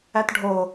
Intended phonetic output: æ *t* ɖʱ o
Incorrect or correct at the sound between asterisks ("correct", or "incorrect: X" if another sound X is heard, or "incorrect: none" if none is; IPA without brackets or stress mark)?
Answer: correct